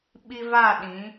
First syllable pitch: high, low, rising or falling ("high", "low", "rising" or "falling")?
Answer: high